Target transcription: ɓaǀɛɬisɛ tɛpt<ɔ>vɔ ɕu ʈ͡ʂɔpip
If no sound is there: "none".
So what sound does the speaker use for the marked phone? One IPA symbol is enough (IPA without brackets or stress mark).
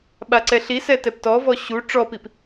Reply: ɔ